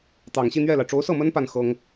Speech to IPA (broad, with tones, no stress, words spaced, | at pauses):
t̪ɑ˨˩ŋɕi˥˧n̪ɥɛ˥˩la˩ɪ̯ ʈ͡ʂo˧˥ʊ̯sɤ˥˩mə˥n pa˥˩n xɤ˥ŋ